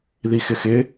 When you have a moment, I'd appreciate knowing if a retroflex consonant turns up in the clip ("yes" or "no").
no